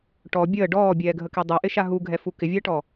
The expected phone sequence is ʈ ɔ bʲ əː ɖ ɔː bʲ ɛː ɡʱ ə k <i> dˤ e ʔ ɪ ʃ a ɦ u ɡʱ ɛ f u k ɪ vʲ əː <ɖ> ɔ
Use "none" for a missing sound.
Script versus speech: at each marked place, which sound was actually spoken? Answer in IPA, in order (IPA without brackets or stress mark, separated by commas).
e, ʈ